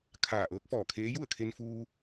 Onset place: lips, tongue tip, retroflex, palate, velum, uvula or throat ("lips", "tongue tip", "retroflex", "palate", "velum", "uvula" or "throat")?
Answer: velum